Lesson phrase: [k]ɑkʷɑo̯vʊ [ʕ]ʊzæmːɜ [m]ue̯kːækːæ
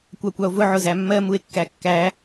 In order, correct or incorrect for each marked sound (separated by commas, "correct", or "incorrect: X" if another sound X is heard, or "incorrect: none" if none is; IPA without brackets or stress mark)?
incorrect: kʷ, correct, correct